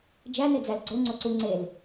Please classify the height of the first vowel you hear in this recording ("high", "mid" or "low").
low